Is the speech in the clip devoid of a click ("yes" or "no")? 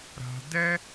yes